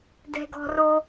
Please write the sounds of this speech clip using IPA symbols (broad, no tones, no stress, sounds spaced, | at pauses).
d ɛ̤ ɡ ɔ̤ r o